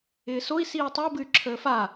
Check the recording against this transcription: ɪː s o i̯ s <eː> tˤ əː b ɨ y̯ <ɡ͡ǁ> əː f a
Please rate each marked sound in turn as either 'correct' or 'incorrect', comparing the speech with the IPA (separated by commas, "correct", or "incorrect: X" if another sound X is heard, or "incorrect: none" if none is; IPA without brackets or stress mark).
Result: incorrect: iː, incorrect: ǁʰ